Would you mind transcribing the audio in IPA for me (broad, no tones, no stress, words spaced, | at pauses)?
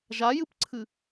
ʒajɨpǀʰɨ